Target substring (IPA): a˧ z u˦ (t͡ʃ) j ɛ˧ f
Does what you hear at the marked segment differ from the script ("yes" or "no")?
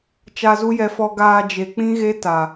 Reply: yes